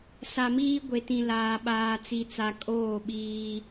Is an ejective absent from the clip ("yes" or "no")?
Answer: no